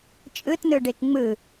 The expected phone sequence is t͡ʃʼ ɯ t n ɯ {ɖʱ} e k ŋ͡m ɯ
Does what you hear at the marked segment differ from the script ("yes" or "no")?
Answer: yes